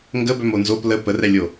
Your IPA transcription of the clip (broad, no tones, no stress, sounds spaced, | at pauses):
ŋ ɡ ə b œ m o n z o p l ə p ə r ɛ lʲ o